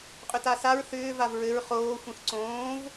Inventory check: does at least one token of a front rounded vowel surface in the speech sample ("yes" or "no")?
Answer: yes